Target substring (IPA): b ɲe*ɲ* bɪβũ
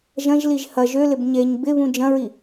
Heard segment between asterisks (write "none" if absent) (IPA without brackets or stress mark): ɲ